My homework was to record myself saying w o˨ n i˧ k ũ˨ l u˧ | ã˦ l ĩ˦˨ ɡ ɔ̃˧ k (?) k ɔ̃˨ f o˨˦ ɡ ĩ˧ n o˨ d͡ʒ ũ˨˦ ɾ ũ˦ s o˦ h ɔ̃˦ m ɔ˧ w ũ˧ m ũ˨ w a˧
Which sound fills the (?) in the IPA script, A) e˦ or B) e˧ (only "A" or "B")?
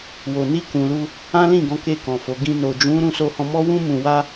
B